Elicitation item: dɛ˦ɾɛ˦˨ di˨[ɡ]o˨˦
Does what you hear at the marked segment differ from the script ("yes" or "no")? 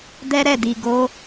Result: no